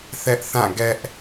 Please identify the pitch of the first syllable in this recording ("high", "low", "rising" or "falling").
high